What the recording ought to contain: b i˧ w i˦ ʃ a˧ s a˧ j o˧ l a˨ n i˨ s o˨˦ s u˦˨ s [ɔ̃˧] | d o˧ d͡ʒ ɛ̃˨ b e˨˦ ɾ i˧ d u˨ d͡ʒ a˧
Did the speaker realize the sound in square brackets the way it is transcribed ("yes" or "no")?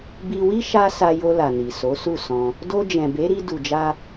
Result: yes